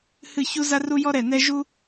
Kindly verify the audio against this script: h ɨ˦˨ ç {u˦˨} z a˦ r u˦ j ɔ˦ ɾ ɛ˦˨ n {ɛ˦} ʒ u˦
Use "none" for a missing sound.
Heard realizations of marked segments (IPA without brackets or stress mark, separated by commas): u˦, ɛ˦